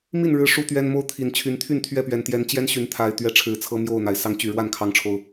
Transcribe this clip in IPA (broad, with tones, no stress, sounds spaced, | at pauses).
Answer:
m i˥˨ n ɻ ɻ̩˨˦ ʂ u˦ t̪ ɥ ɛ˦ n m o˦ ʊ̯ t̪ʰ i˨˩ n t͡ɕʰ y˨˦ n t̪ʰ y˥˨ n t̪ʰ ɥ ɛ˥˨ p ɥ ɛ˨˩ n t̪ j ɛ˨˦ n t͡ɕ j ɛ˦ n ɕ y˨˦ n t̪ʰ a˨˩ ɪ̯ t̪ ɥ ɛ˦ ʈ͡ʂʰ ɻ̩˨˦ t͡sʰ ɤ˦ m j o˥˨ ʊ̯ n̪ a˩ ɪ̯ s ɑ˨˦ ŋ t͡ɕ y˨˩ ɻ w a˥˨ n kʰ ɑ˨˦ ŋ ʈ͡ʂʰ o˨˩ ʊ̯